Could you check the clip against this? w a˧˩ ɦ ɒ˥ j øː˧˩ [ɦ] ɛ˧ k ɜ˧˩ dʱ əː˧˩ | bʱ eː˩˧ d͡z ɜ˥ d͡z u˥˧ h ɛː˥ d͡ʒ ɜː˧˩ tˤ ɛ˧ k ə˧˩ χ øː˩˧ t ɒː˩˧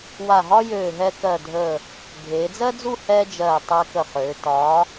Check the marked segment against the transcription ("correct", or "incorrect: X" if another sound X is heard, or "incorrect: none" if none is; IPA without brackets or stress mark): correct